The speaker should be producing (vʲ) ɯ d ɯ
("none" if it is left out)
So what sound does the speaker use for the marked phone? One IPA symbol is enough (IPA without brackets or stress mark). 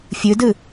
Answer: fʲ